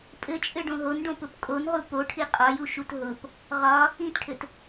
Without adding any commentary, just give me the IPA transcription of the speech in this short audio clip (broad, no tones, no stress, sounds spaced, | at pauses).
pʼ ɘ t͡ʃʼ ɘ ɖ õ ɦ o n ɖ õ p ʊ p kʼ o n ʁ u p o ʈʰ i qʼ ɒ j u ʃ u t ɦ ʊ p | ʁ ɒ | ĩ t ʈʰ ɘ t